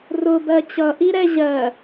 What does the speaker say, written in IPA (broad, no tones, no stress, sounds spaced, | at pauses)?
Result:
r ʊ b ɜ t͡ɕ ʌ ʔ i ɾ ɛ ʑ ɜ